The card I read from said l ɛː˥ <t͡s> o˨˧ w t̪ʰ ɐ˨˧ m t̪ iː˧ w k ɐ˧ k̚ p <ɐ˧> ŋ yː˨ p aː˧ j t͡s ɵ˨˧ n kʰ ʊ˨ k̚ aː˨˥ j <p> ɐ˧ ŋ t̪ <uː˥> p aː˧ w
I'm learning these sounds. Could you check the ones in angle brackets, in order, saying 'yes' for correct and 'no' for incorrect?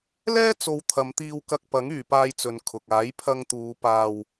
yes, no, no, no

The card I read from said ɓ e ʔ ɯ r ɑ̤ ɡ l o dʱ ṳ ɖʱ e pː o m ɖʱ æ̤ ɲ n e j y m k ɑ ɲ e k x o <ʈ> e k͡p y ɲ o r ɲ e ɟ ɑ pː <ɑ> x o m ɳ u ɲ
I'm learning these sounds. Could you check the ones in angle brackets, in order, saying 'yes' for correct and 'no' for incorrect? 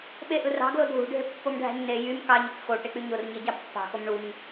yes, no

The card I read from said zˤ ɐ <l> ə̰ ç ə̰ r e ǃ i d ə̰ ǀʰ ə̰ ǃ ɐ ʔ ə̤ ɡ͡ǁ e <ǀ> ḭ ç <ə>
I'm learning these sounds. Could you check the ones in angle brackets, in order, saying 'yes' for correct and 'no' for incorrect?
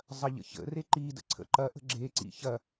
no, yes, no

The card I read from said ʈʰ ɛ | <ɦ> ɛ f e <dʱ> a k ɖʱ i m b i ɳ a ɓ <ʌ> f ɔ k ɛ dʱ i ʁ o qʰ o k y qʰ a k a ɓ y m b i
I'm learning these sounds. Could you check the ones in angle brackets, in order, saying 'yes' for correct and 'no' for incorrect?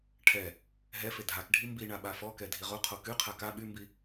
yes, yes, no

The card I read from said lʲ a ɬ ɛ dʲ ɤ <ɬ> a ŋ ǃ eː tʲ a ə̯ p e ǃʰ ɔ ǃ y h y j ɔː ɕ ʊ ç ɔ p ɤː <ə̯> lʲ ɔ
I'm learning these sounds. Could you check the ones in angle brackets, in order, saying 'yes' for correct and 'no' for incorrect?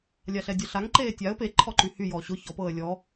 yes, yes

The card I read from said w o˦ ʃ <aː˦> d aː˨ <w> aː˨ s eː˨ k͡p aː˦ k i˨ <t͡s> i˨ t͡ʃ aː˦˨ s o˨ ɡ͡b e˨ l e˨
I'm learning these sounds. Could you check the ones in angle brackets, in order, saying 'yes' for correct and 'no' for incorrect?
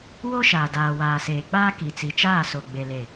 no, yes, yes

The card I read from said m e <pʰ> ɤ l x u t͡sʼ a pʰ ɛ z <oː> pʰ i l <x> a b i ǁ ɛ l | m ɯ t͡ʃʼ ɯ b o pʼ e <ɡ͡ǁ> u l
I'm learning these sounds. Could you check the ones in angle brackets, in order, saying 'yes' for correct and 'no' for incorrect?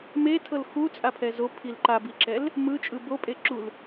no, no, no, no

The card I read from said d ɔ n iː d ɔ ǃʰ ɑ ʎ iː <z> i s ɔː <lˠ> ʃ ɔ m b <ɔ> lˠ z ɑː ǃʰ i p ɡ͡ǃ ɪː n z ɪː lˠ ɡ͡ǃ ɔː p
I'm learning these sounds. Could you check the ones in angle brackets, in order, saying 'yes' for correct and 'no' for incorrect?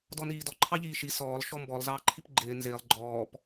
no, yes, yes

